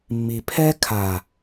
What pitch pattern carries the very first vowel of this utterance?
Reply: low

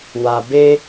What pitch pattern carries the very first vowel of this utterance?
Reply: low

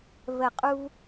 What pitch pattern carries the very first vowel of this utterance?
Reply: low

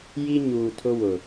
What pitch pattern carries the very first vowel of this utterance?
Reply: high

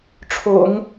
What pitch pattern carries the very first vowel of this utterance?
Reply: low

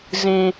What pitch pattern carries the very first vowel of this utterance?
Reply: high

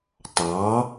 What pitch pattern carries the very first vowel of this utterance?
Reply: rising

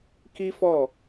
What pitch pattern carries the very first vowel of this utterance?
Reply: high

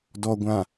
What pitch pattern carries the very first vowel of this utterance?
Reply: low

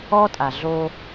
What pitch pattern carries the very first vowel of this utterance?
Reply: high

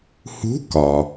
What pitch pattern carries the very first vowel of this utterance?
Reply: rising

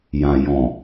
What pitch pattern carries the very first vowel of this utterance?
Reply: low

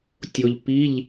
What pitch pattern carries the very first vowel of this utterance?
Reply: low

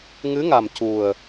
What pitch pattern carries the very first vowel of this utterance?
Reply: rising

